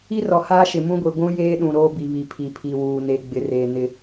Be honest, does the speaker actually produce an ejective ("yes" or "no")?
no